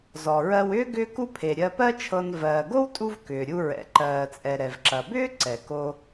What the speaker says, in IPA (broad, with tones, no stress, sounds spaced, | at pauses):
z ɔ˩ ɹ ɜ˧ w ʏː˥ ɡ ʏː˥ k u˥ pʰ e˩ ɾʲ ɜ˧ p ɜ˥ t͡ʃʰ ɤ˧ n v ɜː˩ ɡ o˥ w tʼ u˧ v k ʏː˩ ɾʲ u˧ ɹ ɛ̰˩ ǃ ɜː˩ t͡sʼ ɛ˩ ɾ ɛ˩ v ǁ ɐ˩ b ʏː˥ ǀ ɛ˩ k o˧